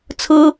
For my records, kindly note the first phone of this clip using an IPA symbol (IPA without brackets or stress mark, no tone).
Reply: t͡sʰ